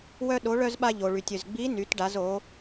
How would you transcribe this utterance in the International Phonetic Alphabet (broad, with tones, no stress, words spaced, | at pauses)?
wœ˧ ɗo˩˧ɭœ˧z ɓa˧ ʎo˩ɭy˩tʲ ʏ˩zɡ͡bi˧˥ ny˩˧tɖa˩˧z o˩˧